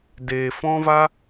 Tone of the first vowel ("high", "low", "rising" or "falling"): low